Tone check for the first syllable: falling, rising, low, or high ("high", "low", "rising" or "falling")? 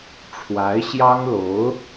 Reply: rising